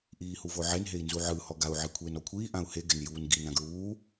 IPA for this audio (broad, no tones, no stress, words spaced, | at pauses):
ʔiːhuvoʕen ɦei̯nzuʕɯ hɔɡau̯ ʕikʷʰeːnɔkʷʰiː ʔãu̯he ɡɛnjuːnɡi nãɡɹuː